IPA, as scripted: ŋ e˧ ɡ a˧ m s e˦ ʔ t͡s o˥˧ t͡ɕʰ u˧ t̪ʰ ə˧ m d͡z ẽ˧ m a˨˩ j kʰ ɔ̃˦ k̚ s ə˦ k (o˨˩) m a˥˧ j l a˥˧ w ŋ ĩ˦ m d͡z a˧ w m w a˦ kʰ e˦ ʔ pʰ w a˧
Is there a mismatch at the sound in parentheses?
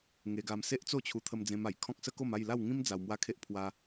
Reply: yes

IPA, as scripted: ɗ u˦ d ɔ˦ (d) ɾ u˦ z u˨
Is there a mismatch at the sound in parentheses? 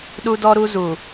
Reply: yes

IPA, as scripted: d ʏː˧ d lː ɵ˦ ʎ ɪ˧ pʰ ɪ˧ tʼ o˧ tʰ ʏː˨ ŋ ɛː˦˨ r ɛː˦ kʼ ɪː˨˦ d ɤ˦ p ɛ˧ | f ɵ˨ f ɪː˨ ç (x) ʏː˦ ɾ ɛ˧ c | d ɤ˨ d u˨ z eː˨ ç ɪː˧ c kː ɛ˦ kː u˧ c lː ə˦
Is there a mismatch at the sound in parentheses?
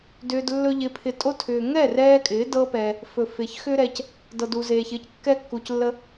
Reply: no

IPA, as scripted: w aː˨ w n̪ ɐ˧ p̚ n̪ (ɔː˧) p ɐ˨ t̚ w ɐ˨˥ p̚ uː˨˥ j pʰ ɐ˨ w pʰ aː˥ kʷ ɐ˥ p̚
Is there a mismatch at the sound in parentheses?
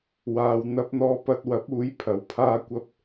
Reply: yes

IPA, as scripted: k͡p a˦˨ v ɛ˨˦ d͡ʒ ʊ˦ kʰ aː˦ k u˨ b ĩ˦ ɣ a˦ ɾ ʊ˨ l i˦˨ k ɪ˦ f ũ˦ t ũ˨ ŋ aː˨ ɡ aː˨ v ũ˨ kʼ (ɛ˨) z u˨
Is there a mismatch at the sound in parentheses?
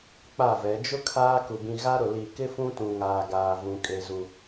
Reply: yes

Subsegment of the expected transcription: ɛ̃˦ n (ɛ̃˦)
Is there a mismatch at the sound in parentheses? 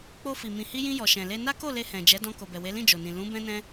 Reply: no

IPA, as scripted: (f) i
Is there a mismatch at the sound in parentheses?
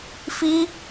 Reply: no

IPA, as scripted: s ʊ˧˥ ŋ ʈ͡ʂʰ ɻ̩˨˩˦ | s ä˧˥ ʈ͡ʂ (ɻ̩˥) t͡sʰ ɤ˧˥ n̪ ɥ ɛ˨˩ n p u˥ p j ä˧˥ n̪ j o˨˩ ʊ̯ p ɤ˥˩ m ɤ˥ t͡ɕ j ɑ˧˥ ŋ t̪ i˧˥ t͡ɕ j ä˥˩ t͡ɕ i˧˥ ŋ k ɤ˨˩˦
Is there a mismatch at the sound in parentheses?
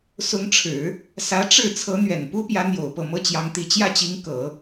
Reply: yes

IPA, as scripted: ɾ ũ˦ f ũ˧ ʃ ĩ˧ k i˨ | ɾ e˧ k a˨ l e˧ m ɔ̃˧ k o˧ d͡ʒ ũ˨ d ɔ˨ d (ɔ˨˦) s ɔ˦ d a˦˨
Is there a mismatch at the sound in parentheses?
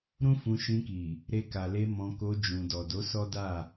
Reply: yes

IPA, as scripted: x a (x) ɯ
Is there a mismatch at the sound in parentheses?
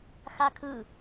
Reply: yes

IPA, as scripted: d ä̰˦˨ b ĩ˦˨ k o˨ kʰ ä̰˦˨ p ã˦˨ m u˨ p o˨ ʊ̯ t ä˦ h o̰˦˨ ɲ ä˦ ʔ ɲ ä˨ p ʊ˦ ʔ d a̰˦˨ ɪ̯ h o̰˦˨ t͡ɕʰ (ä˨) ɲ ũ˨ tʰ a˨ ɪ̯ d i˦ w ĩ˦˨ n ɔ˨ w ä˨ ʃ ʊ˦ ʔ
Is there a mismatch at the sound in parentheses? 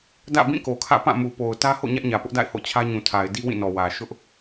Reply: yes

